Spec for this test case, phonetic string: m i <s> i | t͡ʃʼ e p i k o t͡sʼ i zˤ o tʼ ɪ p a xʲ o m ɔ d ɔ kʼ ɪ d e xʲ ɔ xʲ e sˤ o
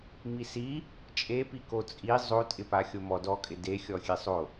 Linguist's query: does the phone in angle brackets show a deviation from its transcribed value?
no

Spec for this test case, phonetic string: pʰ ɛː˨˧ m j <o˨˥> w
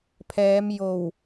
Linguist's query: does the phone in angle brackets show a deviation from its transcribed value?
yes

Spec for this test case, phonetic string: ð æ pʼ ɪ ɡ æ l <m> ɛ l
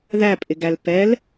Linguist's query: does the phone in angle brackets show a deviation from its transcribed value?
yes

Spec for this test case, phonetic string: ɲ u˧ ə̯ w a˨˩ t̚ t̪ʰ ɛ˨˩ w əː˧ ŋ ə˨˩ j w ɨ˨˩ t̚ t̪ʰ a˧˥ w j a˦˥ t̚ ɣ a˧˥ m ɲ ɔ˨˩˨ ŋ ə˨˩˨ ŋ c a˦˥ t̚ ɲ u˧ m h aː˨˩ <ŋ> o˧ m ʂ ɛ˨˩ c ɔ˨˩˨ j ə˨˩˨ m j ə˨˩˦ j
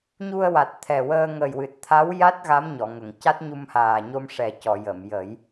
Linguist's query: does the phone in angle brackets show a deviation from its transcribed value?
yes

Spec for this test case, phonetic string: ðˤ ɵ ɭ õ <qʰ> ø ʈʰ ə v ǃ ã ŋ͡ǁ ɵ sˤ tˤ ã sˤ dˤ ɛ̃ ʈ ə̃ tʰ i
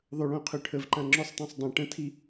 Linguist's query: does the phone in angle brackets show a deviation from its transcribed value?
no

